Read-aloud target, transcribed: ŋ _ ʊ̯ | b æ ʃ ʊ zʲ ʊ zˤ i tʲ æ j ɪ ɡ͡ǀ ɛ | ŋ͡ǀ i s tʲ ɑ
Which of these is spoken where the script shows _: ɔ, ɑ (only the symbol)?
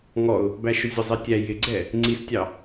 ɔ